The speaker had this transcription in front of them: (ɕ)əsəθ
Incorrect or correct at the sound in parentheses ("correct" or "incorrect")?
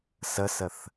incorrect